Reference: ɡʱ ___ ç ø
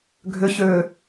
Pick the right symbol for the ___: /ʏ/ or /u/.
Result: ʏ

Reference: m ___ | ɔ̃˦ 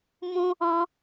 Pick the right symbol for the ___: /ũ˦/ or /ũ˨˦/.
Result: ũ˦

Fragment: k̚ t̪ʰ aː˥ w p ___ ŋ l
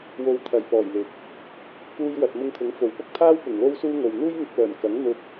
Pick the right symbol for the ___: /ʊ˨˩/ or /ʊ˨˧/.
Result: ʊ˨˩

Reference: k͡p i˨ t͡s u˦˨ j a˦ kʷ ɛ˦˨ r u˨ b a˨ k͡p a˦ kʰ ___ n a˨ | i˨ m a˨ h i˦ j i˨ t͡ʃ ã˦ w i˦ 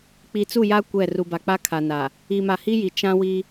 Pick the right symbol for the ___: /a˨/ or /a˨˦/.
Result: a˨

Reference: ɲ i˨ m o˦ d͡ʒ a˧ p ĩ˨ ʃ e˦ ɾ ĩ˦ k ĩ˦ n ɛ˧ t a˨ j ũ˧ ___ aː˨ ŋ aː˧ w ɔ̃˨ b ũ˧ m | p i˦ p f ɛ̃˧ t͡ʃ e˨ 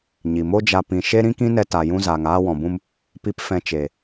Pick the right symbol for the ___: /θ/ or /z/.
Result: z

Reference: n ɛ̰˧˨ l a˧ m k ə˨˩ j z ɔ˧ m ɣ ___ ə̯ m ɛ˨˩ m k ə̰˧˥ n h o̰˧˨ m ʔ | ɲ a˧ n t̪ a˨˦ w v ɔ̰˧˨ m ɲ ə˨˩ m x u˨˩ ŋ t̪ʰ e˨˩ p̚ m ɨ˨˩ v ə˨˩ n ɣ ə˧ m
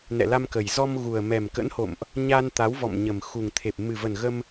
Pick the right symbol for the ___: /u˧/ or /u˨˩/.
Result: u˨˩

